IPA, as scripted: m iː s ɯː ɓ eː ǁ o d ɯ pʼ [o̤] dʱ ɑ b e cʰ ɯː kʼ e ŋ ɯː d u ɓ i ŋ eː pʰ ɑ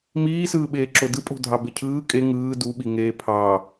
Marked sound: correct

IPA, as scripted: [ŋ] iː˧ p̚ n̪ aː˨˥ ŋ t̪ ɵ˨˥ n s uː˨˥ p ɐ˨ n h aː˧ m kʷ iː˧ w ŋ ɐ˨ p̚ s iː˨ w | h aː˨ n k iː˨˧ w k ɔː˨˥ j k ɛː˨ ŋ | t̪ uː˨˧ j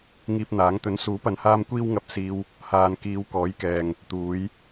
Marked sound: correct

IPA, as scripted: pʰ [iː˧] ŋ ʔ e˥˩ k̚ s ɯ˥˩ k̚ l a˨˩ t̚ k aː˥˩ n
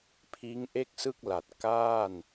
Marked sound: incorrect: iː˦˥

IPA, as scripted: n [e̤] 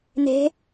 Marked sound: correct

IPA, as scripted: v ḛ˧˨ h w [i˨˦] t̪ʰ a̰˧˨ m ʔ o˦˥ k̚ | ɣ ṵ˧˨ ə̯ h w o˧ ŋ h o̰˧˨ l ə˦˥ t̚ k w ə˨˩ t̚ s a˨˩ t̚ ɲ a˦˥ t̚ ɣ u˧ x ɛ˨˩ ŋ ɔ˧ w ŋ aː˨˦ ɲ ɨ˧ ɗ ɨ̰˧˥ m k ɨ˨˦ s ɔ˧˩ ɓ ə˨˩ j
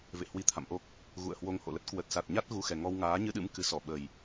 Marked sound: incorrect: i˧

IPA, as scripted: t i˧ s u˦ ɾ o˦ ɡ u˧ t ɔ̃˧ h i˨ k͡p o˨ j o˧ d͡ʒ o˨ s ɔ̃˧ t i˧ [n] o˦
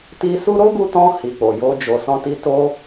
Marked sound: incorrect: t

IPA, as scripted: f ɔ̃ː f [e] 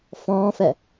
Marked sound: incorrect: ɛ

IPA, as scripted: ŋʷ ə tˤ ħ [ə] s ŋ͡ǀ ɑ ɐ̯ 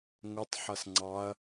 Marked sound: incorrect: ʌ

